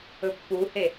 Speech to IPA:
ɵ pː u h e

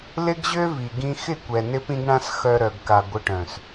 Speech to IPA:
l ɪ˦ ɡ ʑ ø˦ v i˨ ɡ ĩ˧ x ɪ˦˨ kʷ ɛ˨ n ɪ˦ p ĩ˦ ɡ ɳ ã˦ s x œ˧ ɾ œ˨ ɡ k a˨ ɡʷ ə˧ ʈ œ̃˨ s

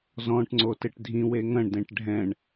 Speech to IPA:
z ɔ̃ ʈ ŋ͡ǀ o t e ʈ dʱ ĩ w e ŋ ɐ̃ ɳ d ẽ ʈ ɖʱ ɛ̃ ɳ

